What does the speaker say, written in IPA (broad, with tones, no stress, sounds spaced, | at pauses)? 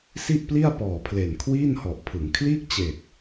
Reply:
s i˥˩ ʔ p l i˥˩ a̯ p ɔː˨˩ pʰ l e˨˩ n kʰ w iː˥˩ n h ɔ˨˩ ʔ pʰ ɯ˩˦ ŋ kʰ l iː˥˩ k̚ t͡ɕ eː˨˩ k̚